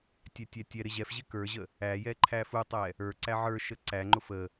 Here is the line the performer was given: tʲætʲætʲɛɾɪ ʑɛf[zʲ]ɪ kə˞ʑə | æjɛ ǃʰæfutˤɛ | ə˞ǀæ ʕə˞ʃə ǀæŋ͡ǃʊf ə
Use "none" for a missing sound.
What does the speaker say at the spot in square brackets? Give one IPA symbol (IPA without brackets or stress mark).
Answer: ʑ